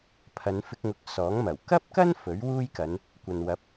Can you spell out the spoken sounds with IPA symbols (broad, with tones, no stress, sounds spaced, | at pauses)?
pʰ ɐ˨˧ n f ɪ˧ k̚ ŋ ʊ˨ k̚ s ɔː˨˥ ŋ m ɐ˨˩ w k ɐ˥ p̚ k ɐ˥ n f ɵ˨˥ ɥ w uː˥ j k ɐ˨˧ n | kʷ ɐ˨ n w ɐ˨˥ p̚